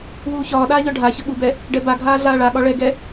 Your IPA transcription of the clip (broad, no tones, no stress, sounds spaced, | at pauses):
w uː ç ɒː ɗ aː ʎ ɒ ɖʱ a ç ə ɠ u b ɛ | ɖ ɛ b a ɡʱ aː ɮ aː ɭ a ɠ ɒ ɭ ɛ ɡ ɛ